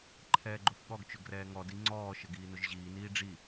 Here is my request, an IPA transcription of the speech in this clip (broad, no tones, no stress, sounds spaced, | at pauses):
ǃʰ ɛː ɡ͡ǃ ʊ f ɠ ɔ ɡ t͡ʃ ʊ ɡ r ɛː ŋ ɔ d i ŋ͡ǀ ɔː ʃ ə ɡ iː n ʊ ʒ ʑ iː n iː ɖ͡ʐ i